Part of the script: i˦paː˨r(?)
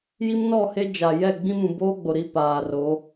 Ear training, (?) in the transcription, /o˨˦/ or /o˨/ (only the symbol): o˨˦